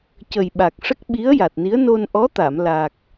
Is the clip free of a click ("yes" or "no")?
yes